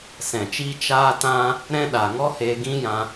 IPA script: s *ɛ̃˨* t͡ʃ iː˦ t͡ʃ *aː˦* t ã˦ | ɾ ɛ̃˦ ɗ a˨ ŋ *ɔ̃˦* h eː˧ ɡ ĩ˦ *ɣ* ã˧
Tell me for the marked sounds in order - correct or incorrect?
correct, correct, incorrect, incorrect

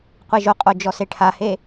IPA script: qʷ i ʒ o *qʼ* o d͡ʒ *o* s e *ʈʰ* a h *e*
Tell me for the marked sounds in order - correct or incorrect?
correct, incorrect, correct, correct

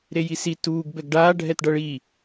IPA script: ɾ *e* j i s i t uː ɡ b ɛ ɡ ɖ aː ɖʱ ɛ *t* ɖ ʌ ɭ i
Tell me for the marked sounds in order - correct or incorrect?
correct, correct

